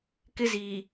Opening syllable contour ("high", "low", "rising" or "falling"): high